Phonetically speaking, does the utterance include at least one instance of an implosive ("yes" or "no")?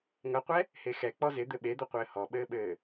yes